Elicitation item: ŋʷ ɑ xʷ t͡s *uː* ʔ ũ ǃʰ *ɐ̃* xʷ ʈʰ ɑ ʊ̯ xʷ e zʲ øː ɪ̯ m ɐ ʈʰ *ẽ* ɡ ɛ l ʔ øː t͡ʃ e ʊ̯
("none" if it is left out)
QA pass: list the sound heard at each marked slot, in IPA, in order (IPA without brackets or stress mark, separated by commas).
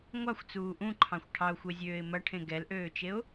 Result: uː, ɑ̃, ẽ